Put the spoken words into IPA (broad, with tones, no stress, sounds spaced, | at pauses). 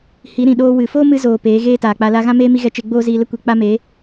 h i˨˦ ɾ ĩ˨ ɗ oː˧ w ɨ˨ f oː˦ m ɨ˧ z oː˧ p eː˨˦ ɣ eː˦ t aː˨ k͡p a˧ l a˦ ɣ ã˦ m eː˦ m i˦ ɣ ɛ˧ t͡ʃ e˧ ɡ͡b oː˦ z iː˧ l ə˦ kʷ e˧ k͡p a˦ m e˨˦